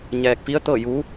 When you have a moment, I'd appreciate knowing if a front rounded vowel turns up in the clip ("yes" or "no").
no